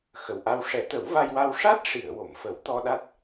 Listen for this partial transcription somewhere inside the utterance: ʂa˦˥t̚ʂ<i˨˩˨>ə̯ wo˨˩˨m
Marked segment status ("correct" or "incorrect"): correct